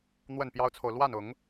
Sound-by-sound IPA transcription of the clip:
n̪ w ə˥˩ n p j ɑ˥ ʊ̯ t͡sʰ o˨ ʊ̯ l w a˥˩ n ʊ˨˩˦ ŋ

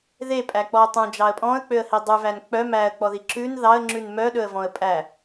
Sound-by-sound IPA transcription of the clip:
ð e pʼ æ k͡p ɔ ə̯ tˤ ũ d͡ʒ ɑ ə̯ pʼ ɔ̃ ə̯ k͡p ø ə̯ h i dˤ ʉ v æ n k͡p œ m æ ə̯ k͡p ɔ ð i ǁ ʉ n ð ɑ ə̯ ŋ͡ǁ ʉ n m œ ɗ ɵ ə̯ v ɔ̃ ə̯ pʼ æ

